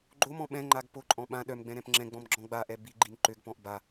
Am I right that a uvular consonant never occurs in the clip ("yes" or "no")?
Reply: yes